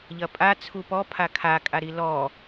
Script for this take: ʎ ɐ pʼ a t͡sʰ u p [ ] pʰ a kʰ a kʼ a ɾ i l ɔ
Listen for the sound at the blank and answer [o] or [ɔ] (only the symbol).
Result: ɔ